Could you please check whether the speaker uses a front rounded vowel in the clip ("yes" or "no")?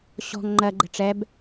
no